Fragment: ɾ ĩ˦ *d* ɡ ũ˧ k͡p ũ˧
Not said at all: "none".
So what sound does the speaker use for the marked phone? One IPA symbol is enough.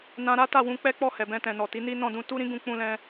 none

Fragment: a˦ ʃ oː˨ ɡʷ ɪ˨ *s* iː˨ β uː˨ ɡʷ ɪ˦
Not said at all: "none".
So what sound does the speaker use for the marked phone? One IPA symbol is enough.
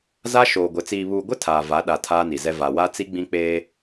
t͡s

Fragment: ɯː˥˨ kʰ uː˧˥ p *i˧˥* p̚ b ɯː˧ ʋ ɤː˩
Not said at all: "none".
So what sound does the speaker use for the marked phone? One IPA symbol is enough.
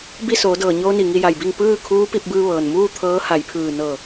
i˧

